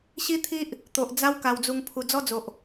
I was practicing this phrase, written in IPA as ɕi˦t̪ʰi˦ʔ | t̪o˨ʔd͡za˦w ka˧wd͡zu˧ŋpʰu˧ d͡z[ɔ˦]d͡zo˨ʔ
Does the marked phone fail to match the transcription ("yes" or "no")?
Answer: no